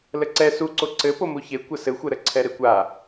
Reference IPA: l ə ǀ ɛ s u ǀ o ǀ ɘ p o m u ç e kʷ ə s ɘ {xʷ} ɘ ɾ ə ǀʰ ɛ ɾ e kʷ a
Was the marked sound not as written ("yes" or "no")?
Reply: no